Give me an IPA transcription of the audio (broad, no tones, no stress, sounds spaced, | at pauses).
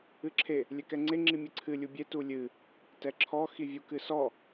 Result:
ɨ ǁʰ e | lʲ ɛ k ɛ ŋ͡ǀ e ŋ͡ǁ i mʲ ɨ ǀʰ ɨ lʲ u bʲ e t u lʲ ɨ | t ɛ ǁʰ ɔ x i vʲ u k ɨ s ɔ